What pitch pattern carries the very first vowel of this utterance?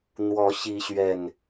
rising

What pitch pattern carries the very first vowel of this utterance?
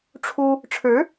high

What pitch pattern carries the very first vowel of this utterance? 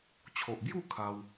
low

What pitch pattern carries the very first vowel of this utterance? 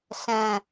low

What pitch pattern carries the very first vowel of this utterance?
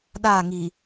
falling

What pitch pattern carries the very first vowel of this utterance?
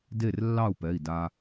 falling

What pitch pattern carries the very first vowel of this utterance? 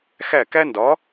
falling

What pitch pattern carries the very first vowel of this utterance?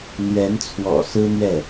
rising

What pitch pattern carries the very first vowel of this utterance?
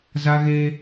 high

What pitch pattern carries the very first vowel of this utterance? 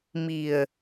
low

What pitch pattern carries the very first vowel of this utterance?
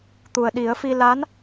low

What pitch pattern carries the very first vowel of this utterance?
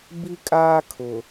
high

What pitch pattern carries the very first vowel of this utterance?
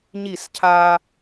falling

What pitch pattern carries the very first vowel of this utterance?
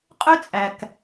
high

